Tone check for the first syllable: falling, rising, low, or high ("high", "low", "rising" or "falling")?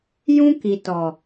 high